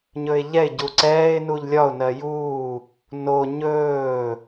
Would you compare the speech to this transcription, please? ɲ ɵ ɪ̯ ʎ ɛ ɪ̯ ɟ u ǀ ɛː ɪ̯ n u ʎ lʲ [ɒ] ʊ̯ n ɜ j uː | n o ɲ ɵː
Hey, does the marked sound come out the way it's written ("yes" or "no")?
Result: yes